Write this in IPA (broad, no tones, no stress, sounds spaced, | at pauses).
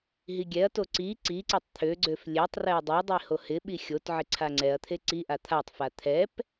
ɦ i ɡʲ ɛ ɐ̯ t o ǀ i ǀ i ǀ e tˤ t̪ʰ ø ɡ͡ǀ ø f lʲ e tˤ r ɛ ɐ̯ dˤ ɛ dˤ i h o h ɪ ɓ i xʲ o t ʕ ɪ ǀʰ a ŋ͡ǀ ɛ ɐ̯ t̪ʰ e ǀ i ʔ a t̪ʰ a tˤ f a t̪ʰ ɛ p